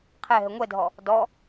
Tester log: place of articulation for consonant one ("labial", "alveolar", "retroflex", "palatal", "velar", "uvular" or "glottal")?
uvular